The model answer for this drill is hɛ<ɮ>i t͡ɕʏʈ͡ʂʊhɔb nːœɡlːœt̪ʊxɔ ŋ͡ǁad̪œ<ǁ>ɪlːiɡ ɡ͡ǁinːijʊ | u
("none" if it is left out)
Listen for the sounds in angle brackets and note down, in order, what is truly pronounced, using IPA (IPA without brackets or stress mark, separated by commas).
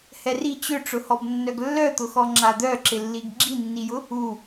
r, ǁ